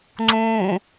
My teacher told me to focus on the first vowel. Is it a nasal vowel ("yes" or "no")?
yes